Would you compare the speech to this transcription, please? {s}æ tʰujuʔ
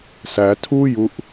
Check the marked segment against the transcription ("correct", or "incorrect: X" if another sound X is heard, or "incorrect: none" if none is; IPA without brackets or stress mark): correct